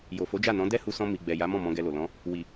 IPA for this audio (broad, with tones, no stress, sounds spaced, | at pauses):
j o˨ f o˨˦ d͡ʒ a˦˨ n ɔ̃˨˦ d ɛ˦ h u˧ s ɔ̃˧ m i˨ ɡ͡b ɛ˨ j a˨˦ m ɔ̃˦˨ m ɔ̃˧ ɡ ɛ˧ l o˨ l ɔ̃˨˦ | w i˨